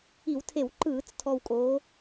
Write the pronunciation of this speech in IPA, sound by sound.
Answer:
i˧˩˧wtʰe˧˩˧wǃɯː˧˩˧t͡s tʰɔ˨˩wkʼoː˩˧

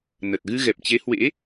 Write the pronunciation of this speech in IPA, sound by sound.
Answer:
nə˨˩t̚ ɣɨ˧ɣɛ˨˩p̚t͡ɕe˨˦hwḛ˧˥

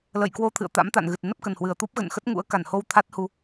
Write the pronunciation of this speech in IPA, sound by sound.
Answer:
lə̰˧˨jkwo˧t̪ʰɨ̰˧˨ə̯ t̪a̰˧˥m t̪a̰˧˨nɣɨ˨˩t̚ nə˦˥p̚kə˨˩nhwɨ˨˩ə̯t̪u˦˥p̚ ɣə̰˧˨nxə˦˥t̚ŋṵ˧˥ə̯ ka˧˩nho˧w t̪ʰa˦˥t̚hu˧

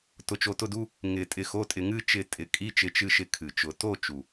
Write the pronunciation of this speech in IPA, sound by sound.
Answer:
tʊ˧t͡ʃo˧tʊ˥˧du˧˥˧ | ŋɪ˨˩˦ tʼɪ˧xo˧˥˧tʼɪ˧ ŋɨ˥˧ t͡ʃɪ˧˩ tʼɪ˨˩˦kʼi˧˥˧t͡ʃɪ˧ t͡ʃɨ˧˩ʃɪ˧˩ kʰɨ˩t͡ʃʊ˨˩˦ to˥˧ t͡ʃu˩

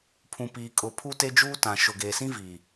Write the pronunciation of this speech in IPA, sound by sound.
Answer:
pʰũ˨piː˨ kʼʊ˨ pʰu˦te˦d͡ʒuː˦ tã˨ ʃʊ˨ɡeː˨sĩ˦ viː˨

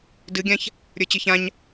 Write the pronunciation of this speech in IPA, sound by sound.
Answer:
dɨɡʲãç | ɾʲə˞t͡ɕɨçãɲ

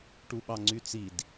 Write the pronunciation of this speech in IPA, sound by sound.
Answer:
ʈuɓɑŋ͡ǀyt͡sid

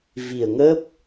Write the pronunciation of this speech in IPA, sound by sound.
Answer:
vi˨˩ə̯ŋə˦˥p̚

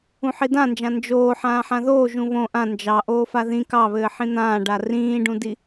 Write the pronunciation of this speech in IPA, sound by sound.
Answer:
ũħidãnd͡ʒã nd͡ʒoː ħãːħãðoː ʒũβõ ʔã nd͡ʒɑ ʔoːfaðĩ kɑβɘː ħĩn̪ãːɖa rĩːɖũdi

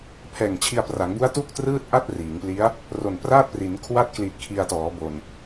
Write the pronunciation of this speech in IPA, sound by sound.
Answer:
pʰɛː˨˩ŋt͡ɕʰi˧a̯pra˩˦ŋbu˦˥a̯ tu˥˩k̚trɯː˥˩t̚ ʔa˥˩t̚ riː˩˦ŋpli˦˥a̯ | ro˨˩npraː˥˩t̚pri˩˦n kʰwa˦˥t̚kli˨˩t̚ kʰi˧a̯tɔː˩˦bo˨˩n

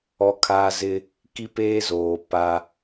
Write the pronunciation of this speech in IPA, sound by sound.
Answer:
ɔ˦kʰaː˦zɪ˦ | ki˦peː˦zoː˨ pa˦

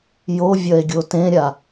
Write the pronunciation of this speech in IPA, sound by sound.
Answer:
jovʲɐe̯ɡʲo tẽɾʲa

